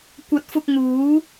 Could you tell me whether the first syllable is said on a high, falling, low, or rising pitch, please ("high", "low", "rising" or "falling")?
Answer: rising